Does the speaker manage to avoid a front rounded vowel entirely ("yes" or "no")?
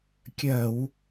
yes